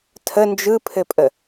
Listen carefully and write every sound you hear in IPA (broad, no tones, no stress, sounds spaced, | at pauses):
tʰ ə n d͡ʒ ɯ pʰ ɘ pʼ ə